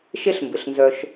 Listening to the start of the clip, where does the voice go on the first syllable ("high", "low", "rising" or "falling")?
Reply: high